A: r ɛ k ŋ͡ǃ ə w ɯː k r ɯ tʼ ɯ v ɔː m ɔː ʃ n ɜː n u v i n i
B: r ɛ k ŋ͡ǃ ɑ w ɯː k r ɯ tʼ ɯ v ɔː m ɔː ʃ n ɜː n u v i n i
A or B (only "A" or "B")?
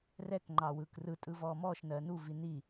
B